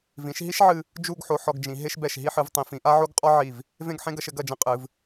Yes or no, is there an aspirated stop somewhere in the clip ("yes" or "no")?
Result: no